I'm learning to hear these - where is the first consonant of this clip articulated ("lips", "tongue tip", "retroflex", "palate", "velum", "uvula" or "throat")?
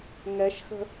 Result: velum